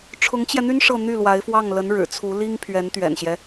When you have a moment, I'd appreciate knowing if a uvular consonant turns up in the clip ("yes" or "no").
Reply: no